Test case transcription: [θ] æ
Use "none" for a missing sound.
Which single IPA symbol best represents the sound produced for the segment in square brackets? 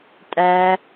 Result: tʼ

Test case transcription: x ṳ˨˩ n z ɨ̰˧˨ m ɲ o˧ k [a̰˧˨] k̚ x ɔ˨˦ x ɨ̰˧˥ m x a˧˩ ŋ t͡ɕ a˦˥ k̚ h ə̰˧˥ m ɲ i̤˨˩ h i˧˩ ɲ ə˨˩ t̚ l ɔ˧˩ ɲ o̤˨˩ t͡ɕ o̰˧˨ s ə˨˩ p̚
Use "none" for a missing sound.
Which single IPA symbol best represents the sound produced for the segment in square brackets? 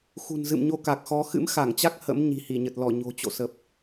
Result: a˨˩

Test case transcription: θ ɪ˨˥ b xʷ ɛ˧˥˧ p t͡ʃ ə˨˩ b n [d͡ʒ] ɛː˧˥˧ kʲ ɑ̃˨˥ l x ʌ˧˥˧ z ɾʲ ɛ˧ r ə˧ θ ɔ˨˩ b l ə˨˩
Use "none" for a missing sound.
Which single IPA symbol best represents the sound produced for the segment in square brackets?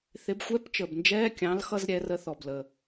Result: d͡ʒ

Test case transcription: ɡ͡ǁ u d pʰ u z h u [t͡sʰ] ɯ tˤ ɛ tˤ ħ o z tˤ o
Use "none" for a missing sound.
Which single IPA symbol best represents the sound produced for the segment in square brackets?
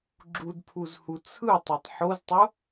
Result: t͡sʰ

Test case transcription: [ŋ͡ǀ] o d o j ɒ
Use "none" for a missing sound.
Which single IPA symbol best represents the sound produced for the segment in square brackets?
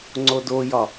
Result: ŋ͡ǀ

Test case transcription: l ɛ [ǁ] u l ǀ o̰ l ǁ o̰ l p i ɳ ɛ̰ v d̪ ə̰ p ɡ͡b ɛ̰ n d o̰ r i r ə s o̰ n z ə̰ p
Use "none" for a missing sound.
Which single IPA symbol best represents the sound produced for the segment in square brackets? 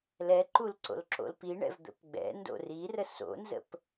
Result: ǃ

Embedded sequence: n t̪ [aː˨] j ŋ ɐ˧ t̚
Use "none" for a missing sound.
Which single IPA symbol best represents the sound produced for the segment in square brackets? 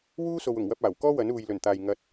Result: aː˨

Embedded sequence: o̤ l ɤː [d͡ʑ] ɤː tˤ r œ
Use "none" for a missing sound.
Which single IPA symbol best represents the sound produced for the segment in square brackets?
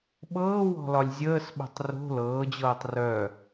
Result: d͡ʑ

